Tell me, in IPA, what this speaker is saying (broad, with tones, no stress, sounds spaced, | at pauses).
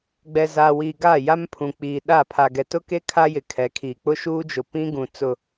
ɡ͡b ɛ˨ z a˨ w iː˨ ɡ a˦˨ j a˦ m pʰ ũ˨ k͡p iː˨ ɗ a˦˨ pʰ a˨ ɡ ɛ˨ t ʊ˦ k e˦ kʰ a˦ j ɪ˨ kʰ ɛ˨˦ kʰ iː˨ k͡p ʊ˦ ʃ uː˦ d͡ʒ ʊ˨ p ĩ˦ ɡ ũ˨ t͡s ʊ˨